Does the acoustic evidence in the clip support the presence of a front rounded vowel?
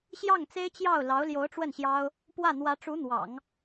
no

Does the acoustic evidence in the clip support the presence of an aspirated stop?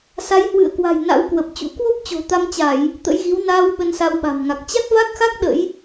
no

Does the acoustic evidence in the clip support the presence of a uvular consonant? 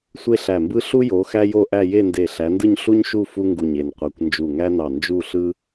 yes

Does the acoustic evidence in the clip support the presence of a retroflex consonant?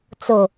no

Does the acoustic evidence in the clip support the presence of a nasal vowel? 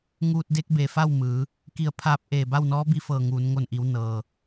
no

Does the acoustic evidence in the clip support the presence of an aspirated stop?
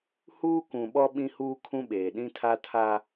yes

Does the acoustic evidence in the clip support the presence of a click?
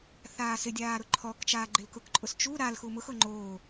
yes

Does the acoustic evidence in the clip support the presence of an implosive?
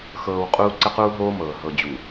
no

